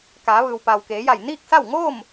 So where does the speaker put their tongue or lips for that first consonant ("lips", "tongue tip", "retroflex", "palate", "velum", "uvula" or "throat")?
velum